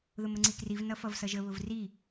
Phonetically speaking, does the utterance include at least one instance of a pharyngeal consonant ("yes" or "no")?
no